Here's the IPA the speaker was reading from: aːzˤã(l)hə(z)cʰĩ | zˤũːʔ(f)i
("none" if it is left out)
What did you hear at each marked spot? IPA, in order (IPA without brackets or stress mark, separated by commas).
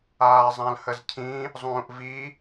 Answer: l, z, v